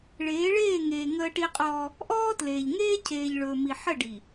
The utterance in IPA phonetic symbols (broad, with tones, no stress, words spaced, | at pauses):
ɭeː˨˦ɭeː˦˨ŋeː˨ ŋəː˦ʈi˦qʼɔː˦ | ʔɔː˦tleː˨ʎ ŋeː˦cʰeː˨ʎɭɵː˨mi˨ ħə˦˨ɖi˨